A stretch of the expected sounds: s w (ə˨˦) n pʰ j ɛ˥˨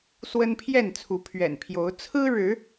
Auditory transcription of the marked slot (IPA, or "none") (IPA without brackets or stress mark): ə˦